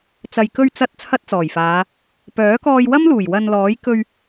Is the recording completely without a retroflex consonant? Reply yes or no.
yes